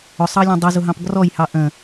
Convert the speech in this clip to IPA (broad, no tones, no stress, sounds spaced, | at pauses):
ʊ sˤ ɑ lʲ ɔ̃ dˤ i z ʊ ɦ ɑ̃ p ɡ r ɔ j h ɑ ʔ ə̃